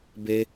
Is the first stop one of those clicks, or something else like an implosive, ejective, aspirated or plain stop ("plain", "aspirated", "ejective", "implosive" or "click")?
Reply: plain